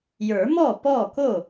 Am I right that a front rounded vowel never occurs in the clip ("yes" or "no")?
yes